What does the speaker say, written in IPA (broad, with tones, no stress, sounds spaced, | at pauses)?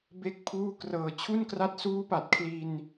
b e˥˩ k̚ pʰ uː˥˩ k r ɤː˨˩ t͡ɕʰ u˥˩ n k r a˦˥ t̚ s uː˦˥ p a˨˩ t̚ kʰ l i˧ n